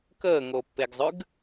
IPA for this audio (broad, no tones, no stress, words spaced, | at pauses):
kəːŋopːeɡzˤʉɡ